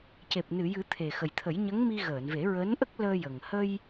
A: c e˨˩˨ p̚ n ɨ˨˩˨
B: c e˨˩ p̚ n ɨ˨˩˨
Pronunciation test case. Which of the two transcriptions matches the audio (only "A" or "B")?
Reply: B